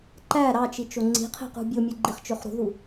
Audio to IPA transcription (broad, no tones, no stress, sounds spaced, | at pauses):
ǃ æ ɾ ɑ t͡ʃ i t͡ʃ o ŋ͡ǀ i̤ qʰ e̤ q ṳ bʲ o mʲ ɯ ɡ͡ǃ i χ t͡ʃ ø χ ɾ ṳ ð u